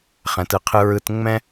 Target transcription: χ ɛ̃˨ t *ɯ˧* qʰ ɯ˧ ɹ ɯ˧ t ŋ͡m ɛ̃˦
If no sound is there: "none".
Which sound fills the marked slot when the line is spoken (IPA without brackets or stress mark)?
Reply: ɯ˨